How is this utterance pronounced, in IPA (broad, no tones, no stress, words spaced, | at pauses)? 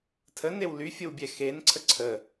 tʰənew lyfʲəwbʲɛ xenǀʰə ǀʰə